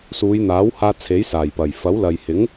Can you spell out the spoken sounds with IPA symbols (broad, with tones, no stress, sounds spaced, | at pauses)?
s uː˨˧ j n̪ aː˨˥ w h aː˧ t͡sʰ e˨˥ j s aː˨˩ j p ɐ˨˩ j f ɐ˨˥ w l ɐ˨ j h ɪ˨˥ ŋ